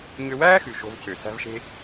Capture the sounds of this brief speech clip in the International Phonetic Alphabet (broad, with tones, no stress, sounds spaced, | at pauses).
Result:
ɲ ø˧ w æː˥ x ʉ˩ ʃ o̤˥ v c ø˩ s æ̤˥ v ʃ e̤˥